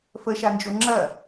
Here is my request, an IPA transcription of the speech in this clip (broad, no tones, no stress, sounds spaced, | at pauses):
f ə ʃ a n d͡ʒ o ŋ͡ǁ ɐ